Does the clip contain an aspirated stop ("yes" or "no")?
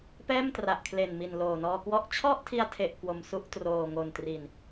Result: yes